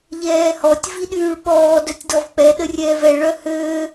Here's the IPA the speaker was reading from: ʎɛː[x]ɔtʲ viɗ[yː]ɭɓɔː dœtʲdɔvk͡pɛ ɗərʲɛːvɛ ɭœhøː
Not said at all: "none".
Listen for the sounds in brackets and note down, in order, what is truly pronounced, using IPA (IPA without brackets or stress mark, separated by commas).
h, yː